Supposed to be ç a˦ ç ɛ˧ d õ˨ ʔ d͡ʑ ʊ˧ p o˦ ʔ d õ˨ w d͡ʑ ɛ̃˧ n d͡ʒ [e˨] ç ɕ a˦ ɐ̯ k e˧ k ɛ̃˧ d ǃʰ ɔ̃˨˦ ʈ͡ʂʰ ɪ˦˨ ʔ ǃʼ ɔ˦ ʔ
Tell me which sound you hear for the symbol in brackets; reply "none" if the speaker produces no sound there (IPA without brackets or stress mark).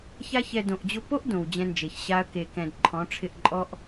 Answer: e˨